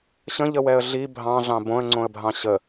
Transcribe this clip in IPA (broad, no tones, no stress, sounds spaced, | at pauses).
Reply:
ɕ ə̃ ʎ ə w ɛ ə̯ ɮ i bʱ ɑ̃ ɮ ɑ̃ b õ ə̯ ŋ͡ǀ õ ə̯ bʱ ɑ̃ ɕ ə